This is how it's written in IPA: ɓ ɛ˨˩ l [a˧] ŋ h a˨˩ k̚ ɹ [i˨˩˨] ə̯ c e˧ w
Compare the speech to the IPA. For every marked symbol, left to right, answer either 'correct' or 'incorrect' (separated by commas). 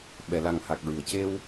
incorrect, incorrect